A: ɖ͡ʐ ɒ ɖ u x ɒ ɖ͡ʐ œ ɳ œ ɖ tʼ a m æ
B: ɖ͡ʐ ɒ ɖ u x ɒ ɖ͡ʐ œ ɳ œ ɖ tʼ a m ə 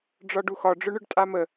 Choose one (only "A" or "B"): B